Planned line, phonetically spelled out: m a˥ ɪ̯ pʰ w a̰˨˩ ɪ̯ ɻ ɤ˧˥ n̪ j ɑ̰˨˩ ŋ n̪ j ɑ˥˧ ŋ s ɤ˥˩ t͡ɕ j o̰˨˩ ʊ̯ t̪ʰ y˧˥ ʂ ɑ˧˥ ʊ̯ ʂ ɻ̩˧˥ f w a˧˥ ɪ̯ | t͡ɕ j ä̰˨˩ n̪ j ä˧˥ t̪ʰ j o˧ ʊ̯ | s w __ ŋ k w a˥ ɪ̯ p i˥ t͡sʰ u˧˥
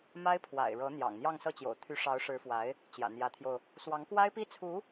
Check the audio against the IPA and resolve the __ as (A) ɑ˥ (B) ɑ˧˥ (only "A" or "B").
B